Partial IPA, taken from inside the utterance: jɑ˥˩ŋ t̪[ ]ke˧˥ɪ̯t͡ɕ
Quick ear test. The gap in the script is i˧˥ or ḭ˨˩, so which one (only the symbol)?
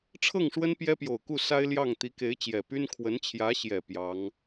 i˧˥